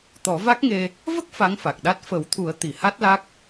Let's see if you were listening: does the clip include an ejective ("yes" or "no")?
no